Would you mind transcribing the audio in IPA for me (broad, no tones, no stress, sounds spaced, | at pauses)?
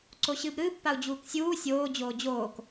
ǀ o ɕ ɨː b ɾ ɨː pː a u̯ d͡ʑ uː k sʲ uː sʲ oː d͡ʑ oː d͡ʑ oː k